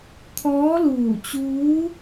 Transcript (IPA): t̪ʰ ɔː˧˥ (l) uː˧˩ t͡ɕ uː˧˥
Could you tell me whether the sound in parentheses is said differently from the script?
no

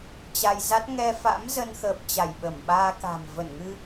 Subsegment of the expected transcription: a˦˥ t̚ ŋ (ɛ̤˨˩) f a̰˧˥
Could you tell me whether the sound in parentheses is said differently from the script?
yes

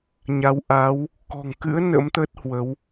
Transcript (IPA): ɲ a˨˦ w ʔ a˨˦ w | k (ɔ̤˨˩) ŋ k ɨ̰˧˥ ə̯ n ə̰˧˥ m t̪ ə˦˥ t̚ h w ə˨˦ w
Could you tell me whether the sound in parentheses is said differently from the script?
no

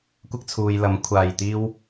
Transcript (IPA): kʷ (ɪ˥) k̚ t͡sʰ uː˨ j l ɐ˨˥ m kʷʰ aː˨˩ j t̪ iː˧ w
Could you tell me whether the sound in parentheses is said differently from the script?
no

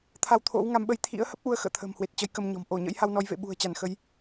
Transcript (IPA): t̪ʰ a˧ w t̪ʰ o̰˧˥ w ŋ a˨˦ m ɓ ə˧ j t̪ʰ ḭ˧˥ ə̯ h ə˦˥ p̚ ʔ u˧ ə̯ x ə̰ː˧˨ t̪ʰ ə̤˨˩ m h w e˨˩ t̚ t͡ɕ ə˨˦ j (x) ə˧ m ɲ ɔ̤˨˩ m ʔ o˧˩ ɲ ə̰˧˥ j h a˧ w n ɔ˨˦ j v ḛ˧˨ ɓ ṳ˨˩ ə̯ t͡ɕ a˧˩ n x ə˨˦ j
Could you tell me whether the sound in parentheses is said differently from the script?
yes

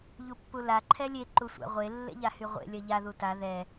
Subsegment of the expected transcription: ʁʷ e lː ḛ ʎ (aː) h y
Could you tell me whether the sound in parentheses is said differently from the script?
yes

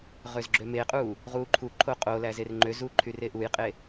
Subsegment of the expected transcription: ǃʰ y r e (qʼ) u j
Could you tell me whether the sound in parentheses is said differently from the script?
yes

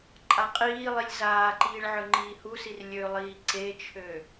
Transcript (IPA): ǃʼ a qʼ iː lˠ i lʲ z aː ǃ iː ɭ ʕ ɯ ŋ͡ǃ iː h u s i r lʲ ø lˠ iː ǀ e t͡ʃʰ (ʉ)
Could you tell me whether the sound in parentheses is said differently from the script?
yes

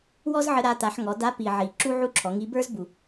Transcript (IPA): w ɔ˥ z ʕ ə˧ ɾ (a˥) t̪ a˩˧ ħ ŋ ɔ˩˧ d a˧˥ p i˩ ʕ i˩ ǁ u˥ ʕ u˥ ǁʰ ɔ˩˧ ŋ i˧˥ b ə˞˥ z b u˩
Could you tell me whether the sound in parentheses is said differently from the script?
yes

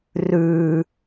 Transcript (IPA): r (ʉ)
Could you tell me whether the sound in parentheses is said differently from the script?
no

